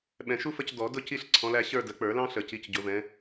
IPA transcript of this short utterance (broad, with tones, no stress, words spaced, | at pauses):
ɓɛ̃˨˩˦ʃu˥fə˥˧c dɔ˨˩˦ dʊ˥˧ ci˥˧ɬǀʰɔ̃˨˦læ˨˦ɕə˞˥˧ də˨˩˦k͡pə˞˨˩˦lɑ̃˥ɬə˨˩˦ ci˨˦cɟʊ˨˩˦vɛ̃˨˦